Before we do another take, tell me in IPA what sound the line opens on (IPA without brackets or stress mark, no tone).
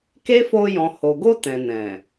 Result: k